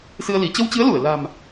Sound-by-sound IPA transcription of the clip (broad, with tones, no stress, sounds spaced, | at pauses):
s ɨ˧ ə̯ l i˧˩ t͡ɕ ə˧ w t͡ɕ ɨ˨˦ ə̯ l u˧˩ ə̯ l a̤˨˩ m